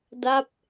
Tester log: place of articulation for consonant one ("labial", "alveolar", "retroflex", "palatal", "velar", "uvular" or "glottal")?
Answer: alveolar